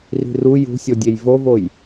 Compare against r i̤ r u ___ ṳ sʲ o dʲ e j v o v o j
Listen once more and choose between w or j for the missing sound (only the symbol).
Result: j